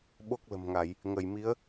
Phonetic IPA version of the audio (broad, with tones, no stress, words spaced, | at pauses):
ɓo˦˥k̚lə̤˨˩mŋa˧˩˨j | ŋə˧˩jmi˨˦ə̯